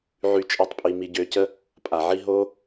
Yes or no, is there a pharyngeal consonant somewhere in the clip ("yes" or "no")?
yes